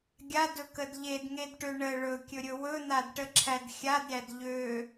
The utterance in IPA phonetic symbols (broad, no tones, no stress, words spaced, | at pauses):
ɡʲadɵkəd ʎedŋedʈø ɳə ɭɵkʲɵɾʲɵ wɵn̪adʈəǁʰæd xʲadɾʲæd ʎø